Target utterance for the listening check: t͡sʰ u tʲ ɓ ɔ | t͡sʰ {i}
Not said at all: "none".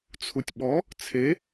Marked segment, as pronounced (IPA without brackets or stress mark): e